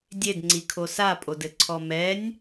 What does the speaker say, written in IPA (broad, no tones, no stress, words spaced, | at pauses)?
dʲedŋ͡ǀikʰo sapʼodɘǀʰɔ mɛnʲ